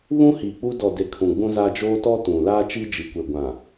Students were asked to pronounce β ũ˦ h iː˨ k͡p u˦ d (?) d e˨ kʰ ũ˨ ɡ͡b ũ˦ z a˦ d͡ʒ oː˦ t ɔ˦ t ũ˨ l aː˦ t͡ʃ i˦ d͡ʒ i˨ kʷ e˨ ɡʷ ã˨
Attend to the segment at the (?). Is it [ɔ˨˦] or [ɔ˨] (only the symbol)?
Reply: ɔ˨